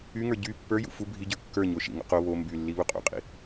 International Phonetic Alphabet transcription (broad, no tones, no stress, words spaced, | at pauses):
yŋə˞ ɟy pːə˞jṵ fu bʱiɟə˞ kːə˞ɲo ʃḭŋo̰ qo βo mby lːiβuqʼṵqʼḭ